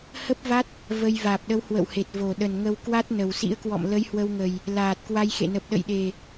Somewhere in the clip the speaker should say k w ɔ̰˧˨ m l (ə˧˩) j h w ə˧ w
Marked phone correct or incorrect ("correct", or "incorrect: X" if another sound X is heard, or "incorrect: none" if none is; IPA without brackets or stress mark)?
incorrect: ə˨˦